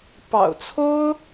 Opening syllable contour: low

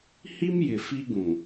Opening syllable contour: high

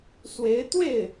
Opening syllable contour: rising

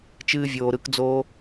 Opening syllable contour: high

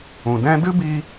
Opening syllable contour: low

